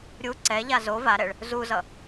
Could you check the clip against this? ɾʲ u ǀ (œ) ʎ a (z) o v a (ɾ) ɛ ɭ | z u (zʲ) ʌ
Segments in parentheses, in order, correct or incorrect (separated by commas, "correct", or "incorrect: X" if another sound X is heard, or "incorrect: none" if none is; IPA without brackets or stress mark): incorrect: ɛ, correct, correct, incorrect: z